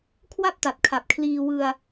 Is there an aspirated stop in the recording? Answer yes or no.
yes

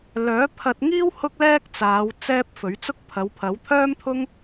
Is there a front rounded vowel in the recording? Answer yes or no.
yes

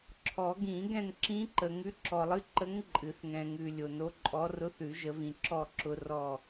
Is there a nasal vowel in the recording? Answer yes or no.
yes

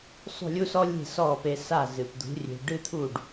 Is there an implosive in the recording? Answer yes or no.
no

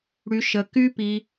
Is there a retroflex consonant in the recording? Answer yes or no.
yes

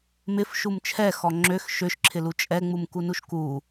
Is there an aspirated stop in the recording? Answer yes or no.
yes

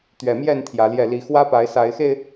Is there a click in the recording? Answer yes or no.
no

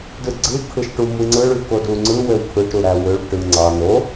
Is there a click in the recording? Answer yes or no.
yes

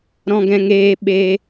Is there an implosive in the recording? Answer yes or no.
yes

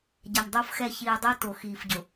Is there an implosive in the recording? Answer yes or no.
no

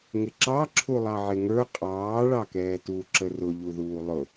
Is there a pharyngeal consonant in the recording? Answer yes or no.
yes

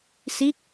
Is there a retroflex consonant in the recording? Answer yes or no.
no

